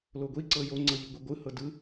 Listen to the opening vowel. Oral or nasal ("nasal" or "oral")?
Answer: oral